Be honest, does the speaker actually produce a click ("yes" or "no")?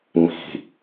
no